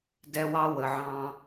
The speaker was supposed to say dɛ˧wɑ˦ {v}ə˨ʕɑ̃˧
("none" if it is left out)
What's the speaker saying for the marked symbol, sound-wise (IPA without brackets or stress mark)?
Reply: w